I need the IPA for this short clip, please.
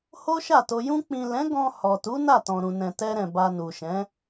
h o˦ ʃ a˦˨ t o˧ j ũ˧ k͡p ĩ˨ l ɛ̃˨˦ ɡ ɔ̃˧ h ɔ˨ t u˨˦ n a˦˨ t ɔ̃˨ ɾ ũ˨ n ɛ̃˨ t ɛ˧ ɾ ɛ̃˨ b a˧ n u˨ ʃ ɛ̃˨˦

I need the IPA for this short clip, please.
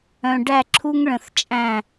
œ̃˨ ɖ æ˦˨ ǁʰ u˦ ŋ ɭ ə̃˨ θ t͡ʃʼ æ̃˦˨

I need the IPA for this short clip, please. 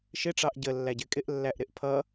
ʃ ɪ ʈ͡ʂ ɑ ʔ ɟ ə lː æ ɟ ɪ kʼ ɪ ʔ lː æ ʔ ɾ ɪ ʔ pʰ ʌ

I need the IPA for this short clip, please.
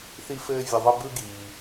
θ i˥ f ɘː˥ vʲ ə˧ ðˤ ə˥ b ɯ˥ ɡ iː˩

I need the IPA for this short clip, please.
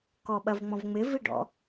k ɔ ɓ ɐ v ŋ͡m ɔ̃ v ŋ͡m ɪ v i ɖ ɔ̰

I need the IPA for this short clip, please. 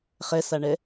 χ ɛ s a ɳ ɛ

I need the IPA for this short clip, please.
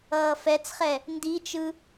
ʌː f ɛ t͡s χ ɛ | n d i t͡ʃ ɯ

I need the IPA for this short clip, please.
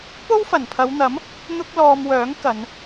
p o˥ w f ɐ˨˩ n pʰ ɐ˨˧ w n̪ ɐ˨˥ m | n̪ ʊ˥ k̚ l ɔː˧ m w œː˨˥ ŋ k ɐ˨˧ n

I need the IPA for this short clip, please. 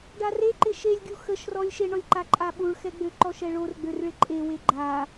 ɖ a r e ǃ ɪ ʃ e lʲ ɡʲ u x ə ʃ r ɔ lʲ ʃ e ɳ ɔ lʲ ǃ a ǃʼ a ɓ u ɭ x ɛ ɡ͡b ø ǃ ɔ ʃ ɛ ɭ o r ɡ͡b ø r ɭ ɪ ǃʼ e w e ɡ͡ǃ a

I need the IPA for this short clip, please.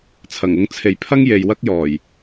t͡sʰ ɐ˨˩ ŋ ʊ˧ ŋ t͡sʰ e˨ j pʰ ɐ˥ ŋ j e˨ j w ɐ˥ k̚ j ɔː˨˩ j

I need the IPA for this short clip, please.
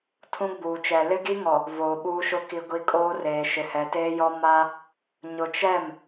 tʰ ũ˦ ɡ͡b uː˨ t͡ʃ ɛ˨ l ɪ˦ ɡ i˦ ŋ ɔ˨ | v oː˨ ɓ uː˦ ʃ ʊ˦ k i˦ ɡʷ i˦ kʼ oː˦ r eː˨ ʃ ɪ˨ h ɛ˨ t eː˦ j ɔ˦ m a˦ | ɲ ʊ˨ t͡ʃ ɛ˦˨ m

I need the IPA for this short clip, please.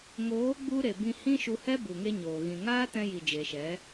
ŋ oː˨˦ ɡ͡b u˧ ɾ e˨ b ĩ˧ h ĩ˦ ʃ u˧ h ɛ˦ b u˨ ŋ e˦ ɲ oː˨ ɣ ĩ˨ ŋ aː˦ t ɛ̃˧ j i˨ d͡ʒ e˨ ʃ ɛ˨˦

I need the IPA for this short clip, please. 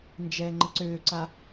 n d͡ʒ ɛː ŋ͡ǃ ə ǀ øː ǀ a

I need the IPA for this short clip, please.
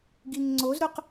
ɡ i ŋ ŋ͡ǀ o z ɾ ʊ q

